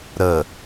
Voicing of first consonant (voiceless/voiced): voiced